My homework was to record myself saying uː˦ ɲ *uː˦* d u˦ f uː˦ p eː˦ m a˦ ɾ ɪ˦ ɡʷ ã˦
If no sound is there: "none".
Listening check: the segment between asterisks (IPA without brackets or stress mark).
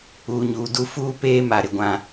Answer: uː˦